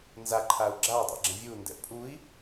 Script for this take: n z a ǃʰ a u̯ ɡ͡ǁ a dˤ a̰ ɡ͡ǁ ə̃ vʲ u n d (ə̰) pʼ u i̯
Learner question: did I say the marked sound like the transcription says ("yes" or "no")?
no